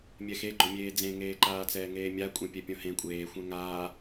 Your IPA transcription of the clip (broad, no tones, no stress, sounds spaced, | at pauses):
mʲ ɛ x e ɡ͡ǃ o mʲ eː d͡z ẽ ŋ eː ǃ aː t͡s ɛː ŋ eː mʲ a kʷʼ ẽ pʲ ɛ pʲ õ h ẽ kʷʼ eː xʷ ɛ̃ ŋ aː